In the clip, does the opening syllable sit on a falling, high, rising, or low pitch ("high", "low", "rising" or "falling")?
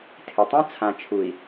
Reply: low